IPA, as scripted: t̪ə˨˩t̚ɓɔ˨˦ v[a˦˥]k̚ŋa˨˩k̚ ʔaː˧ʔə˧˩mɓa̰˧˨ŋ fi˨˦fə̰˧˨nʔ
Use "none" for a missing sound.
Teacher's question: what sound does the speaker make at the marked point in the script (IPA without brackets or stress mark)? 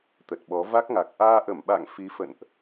a˦˥